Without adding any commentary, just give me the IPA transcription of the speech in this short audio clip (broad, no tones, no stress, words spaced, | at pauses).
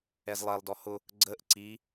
ɛzlˠɛlˠdɔ hʊ | ɡ͡ǀəʔ ǀi